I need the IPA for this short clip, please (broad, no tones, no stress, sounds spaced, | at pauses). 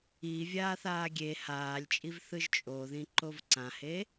i vʲ aː θ aː ɡʲ e h aː lʲ t͡ʃʼ i v θ ɯ ʒ t͡ʃʼ o ð ĩ ǃ o v ǀ ã h e